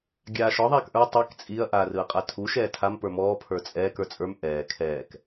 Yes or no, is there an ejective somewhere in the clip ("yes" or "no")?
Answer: yes